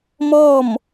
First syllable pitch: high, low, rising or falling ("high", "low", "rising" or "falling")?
falling